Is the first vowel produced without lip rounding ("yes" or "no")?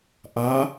yes